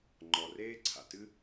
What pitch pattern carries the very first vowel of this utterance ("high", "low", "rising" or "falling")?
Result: low